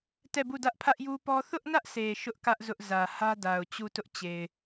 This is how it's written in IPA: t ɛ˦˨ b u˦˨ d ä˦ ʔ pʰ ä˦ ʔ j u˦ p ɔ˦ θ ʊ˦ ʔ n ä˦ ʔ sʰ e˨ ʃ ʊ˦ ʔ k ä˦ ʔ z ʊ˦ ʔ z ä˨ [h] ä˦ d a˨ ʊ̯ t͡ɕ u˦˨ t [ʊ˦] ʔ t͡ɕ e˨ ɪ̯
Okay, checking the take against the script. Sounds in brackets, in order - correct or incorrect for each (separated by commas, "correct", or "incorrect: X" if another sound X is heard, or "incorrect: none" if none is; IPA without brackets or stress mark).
correct, correct